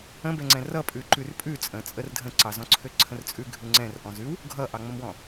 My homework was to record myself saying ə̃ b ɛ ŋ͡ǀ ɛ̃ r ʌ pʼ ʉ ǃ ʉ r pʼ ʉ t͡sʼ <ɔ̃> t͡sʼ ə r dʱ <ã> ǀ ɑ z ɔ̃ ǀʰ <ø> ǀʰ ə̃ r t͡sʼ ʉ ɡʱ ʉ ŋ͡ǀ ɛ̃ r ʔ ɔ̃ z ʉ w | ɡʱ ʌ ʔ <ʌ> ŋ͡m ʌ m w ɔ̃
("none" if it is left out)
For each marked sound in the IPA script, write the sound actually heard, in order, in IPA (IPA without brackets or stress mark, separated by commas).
ə̃, ə̃, ø, ɑ